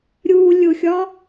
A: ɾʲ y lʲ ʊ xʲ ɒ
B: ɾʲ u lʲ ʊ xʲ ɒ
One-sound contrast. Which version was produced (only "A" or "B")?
B